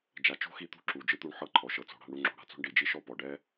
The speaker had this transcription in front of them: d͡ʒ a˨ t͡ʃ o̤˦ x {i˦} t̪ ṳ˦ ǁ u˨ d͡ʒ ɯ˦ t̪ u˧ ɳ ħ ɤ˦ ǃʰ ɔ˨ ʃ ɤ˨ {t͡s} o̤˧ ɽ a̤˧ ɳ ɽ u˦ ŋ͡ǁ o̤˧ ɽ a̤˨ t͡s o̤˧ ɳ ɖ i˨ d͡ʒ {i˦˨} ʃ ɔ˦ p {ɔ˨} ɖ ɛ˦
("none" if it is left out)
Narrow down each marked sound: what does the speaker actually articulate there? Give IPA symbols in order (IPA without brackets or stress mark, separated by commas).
i˧, t͡s, i˦, ɔ˨